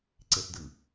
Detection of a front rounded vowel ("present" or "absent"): absent